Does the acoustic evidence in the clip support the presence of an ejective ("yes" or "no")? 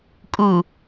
yes